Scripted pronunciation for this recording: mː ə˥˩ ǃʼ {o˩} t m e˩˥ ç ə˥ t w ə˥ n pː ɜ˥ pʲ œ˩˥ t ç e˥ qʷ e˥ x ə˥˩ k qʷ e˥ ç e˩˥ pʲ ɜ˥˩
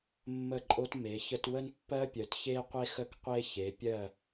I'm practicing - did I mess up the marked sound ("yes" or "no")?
yes